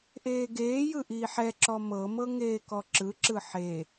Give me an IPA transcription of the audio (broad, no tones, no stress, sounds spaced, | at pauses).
ʔ eː ɡ eː j ɯ ʔ iː ħ ɛ ǁ ɔ m ɤ m ɤ ŋ eː k ɔ ǁ ɯ ǁ ɯ ħ e